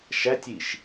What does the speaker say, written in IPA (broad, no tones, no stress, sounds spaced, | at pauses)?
ʃ æ tʲ i ʃ